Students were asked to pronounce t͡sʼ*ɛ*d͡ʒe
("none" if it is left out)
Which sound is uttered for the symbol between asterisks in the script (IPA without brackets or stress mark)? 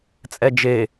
ɛ